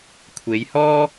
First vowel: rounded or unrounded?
unrounded